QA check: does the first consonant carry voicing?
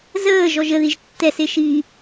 yes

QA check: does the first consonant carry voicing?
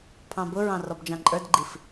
no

